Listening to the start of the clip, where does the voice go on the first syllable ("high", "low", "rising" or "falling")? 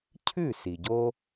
falling